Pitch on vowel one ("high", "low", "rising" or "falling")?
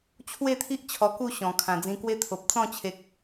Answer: falling